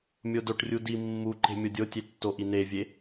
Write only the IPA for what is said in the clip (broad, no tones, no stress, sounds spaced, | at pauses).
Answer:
mʲ o d o ʈ rʲ u d i mː u ǃ e̤ mʲ o dʲ o tʲ e tː o ʔ i n e vʲ e